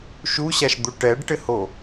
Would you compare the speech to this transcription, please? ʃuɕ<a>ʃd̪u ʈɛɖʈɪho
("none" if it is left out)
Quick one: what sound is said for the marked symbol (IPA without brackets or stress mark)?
a